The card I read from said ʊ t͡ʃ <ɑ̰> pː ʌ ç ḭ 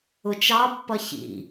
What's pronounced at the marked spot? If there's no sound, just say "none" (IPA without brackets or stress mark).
ɑ